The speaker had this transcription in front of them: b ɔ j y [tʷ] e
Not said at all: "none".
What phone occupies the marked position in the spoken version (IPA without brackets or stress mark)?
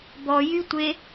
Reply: tʷ